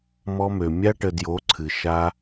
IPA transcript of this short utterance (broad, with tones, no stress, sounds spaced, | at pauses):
m ɔ˧ m ø˨ mʲ a˧ ʈ ə˨ d j o˨˦ ǀʰ ɨ˨ ʃ a˧